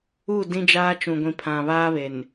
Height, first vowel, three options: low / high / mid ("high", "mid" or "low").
high